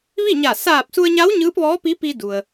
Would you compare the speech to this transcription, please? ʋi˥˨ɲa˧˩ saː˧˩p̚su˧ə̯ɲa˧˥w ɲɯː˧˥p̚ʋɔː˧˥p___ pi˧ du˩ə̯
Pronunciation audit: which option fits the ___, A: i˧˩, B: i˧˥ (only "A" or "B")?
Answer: B